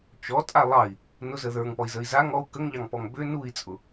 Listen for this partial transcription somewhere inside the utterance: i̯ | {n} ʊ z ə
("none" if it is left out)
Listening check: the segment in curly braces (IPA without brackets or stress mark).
n